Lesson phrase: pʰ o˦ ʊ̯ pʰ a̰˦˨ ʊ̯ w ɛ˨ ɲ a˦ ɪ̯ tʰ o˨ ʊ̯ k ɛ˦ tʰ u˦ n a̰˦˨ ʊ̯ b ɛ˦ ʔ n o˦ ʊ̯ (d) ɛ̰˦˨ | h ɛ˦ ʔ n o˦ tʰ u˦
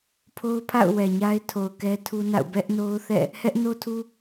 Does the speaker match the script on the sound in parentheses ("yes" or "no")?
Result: no